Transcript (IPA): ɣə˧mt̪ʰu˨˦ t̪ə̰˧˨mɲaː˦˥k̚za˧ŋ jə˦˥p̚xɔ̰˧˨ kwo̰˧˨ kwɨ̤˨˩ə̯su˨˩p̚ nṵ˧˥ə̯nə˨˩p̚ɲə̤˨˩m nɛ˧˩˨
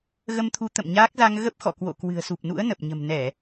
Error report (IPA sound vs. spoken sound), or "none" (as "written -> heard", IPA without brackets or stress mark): j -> ɣ